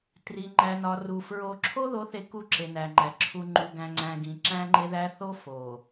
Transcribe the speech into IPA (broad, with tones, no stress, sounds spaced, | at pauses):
t r i˨ ŋ͡ǃ æ˨ n ɒ˨ r u˨ f ɹ o˨ ǁʰ o˦ ð o˨˦ θ e˨ k u˦˨ ǁ e˨ n æ˨ ŋ͡ǃ æ˨ ǁʰ u˨ ŋ͡ǃ u˨ ɡ æ̃˨ ŋ͡ǀ æ̃˨ ɡ ĩ˨ ǁ æ̃˦ ŋ͡ǃ e˦ ð æ˦ θ o˦ f o˨